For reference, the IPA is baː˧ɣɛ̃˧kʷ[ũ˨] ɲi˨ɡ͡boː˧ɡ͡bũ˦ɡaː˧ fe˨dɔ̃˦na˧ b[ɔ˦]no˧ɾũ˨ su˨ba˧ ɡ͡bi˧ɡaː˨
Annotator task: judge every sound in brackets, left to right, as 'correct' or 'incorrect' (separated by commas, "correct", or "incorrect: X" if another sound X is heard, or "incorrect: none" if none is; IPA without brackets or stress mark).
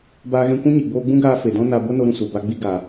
incorrect: ũ˦, incorrect: o˦